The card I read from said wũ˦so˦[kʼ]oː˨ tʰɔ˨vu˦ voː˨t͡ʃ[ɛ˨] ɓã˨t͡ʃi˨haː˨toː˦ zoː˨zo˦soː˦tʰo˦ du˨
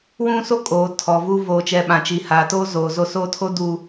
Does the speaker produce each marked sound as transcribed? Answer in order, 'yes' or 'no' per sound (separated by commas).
yes, yes